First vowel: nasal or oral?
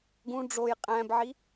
nasal